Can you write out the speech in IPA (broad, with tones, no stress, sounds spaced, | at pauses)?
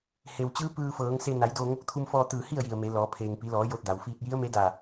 h e˩ w t͡ɕ ɯː˧˥ p ɯː˧ f ɤː˩˧ ŋ s e˧ n a˩˧ j d oː˧ ŋ o˧ k̚ t̪ʰ u˧ m f ɔː˧ t̪ ɯː˧˩ h i˥˨ ə̯ j i˩ ə̯ m e˩˧ l ɔː˩˧ pʰ eː˩ ŋ p i˩˧ l ɔː˩˧ j o˧ t̚ d a˩ w f iː˧ t̚ j i˧˥ ə̯ m e˧˥ d a˧˩